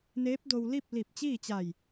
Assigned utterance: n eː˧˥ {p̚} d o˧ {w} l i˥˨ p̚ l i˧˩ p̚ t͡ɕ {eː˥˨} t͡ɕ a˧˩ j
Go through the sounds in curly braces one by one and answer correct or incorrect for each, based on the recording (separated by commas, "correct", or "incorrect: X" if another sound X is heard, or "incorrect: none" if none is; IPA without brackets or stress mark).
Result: correct, correct, incorrect: iː˥˨